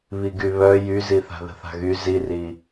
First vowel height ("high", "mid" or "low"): high